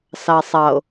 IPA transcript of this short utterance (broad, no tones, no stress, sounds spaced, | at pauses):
s ɑ sˤ ɑ o̯